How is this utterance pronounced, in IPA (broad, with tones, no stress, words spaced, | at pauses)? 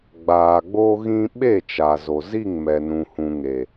ɡ͡baː˨ɡ͡bo˦ɣĩ˦ ɓe˦˨t͡ʃa˨zo˨ zi˦˨ŋmɛ˨ nũ˨hũ˨ŋe˨